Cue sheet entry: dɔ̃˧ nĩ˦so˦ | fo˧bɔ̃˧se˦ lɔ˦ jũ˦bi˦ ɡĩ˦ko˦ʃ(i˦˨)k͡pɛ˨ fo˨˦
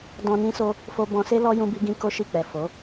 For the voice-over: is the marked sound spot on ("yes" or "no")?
yes